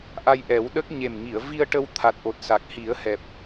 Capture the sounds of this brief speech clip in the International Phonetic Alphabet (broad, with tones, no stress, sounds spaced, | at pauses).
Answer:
ʔ a˧ j ʔ ɛ˨˩˦ w ɗ ə˦˥ k̚ ɲ e˨˩ m ŋ i˨˩˨ ə̯ v i˧ ə̯ ʈ ə˧ w t̪ʰ a˨˩ t̚ ʔ o˨˩ t̚ s a˨˩ k̚ h i˨˩˦ ə̯ h ɛ˨˩ p̚